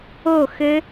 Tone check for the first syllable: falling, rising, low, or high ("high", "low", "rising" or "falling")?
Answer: falling